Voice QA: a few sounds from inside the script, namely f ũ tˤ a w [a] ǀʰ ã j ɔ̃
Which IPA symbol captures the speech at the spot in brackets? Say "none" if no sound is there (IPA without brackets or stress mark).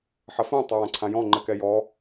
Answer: ã